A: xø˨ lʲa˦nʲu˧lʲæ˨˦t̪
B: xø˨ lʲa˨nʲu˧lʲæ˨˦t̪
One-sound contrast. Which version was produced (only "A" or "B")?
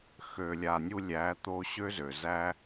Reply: B